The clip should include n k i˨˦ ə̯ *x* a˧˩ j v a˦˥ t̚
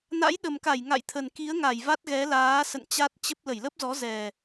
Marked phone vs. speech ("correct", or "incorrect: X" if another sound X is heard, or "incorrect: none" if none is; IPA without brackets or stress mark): incorrect: ŋ